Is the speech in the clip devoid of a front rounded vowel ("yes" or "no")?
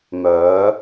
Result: no